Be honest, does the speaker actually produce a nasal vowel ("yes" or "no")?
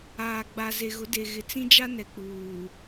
yes